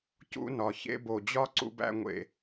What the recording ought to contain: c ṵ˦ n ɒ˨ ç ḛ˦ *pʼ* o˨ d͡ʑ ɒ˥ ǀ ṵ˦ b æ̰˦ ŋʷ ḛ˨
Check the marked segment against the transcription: incorrect: b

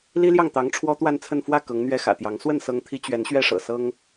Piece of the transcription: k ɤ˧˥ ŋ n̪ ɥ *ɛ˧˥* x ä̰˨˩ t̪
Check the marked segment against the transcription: incorrect: ɛ˥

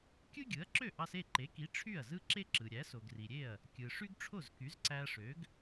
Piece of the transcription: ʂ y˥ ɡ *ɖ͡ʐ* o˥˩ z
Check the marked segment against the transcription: incorrect: ʈ͡ʂʰ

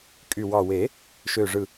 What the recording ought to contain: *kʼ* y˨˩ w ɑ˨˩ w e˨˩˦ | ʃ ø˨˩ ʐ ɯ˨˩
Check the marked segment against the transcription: correct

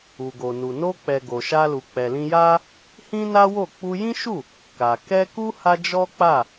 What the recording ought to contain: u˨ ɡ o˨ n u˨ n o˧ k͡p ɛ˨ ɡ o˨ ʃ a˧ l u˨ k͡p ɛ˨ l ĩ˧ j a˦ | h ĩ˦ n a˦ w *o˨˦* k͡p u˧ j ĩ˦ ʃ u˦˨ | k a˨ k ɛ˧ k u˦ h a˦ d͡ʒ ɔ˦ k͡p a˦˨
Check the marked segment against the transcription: incorrect: o˦˨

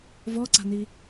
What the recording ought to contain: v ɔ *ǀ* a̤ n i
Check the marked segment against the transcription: correct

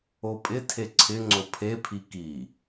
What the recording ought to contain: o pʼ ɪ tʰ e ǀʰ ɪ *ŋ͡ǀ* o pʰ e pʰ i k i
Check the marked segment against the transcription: correct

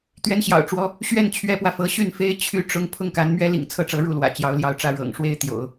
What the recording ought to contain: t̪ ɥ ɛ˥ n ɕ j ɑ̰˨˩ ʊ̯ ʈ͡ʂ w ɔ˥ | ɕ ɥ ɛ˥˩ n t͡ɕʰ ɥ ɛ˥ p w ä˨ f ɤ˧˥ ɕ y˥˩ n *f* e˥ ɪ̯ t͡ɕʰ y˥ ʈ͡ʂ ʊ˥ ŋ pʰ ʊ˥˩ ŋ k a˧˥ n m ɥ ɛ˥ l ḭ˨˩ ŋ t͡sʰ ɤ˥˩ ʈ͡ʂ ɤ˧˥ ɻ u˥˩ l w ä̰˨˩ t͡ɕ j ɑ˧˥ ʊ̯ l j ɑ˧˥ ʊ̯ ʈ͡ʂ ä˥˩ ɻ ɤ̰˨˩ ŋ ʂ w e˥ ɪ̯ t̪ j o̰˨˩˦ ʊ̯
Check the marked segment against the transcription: correct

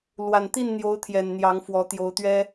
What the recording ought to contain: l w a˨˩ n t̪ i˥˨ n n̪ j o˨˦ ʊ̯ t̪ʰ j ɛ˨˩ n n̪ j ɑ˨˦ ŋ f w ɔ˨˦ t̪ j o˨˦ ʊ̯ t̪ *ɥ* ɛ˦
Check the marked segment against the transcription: correct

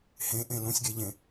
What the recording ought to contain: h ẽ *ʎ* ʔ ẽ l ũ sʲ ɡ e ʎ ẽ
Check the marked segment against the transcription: incorrect: none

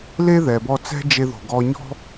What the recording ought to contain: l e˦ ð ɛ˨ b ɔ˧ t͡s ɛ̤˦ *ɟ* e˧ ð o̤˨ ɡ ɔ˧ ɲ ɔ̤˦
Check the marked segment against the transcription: incorrect: d͡ʒ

